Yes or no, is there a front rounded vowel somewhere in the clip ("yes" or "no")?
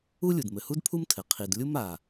no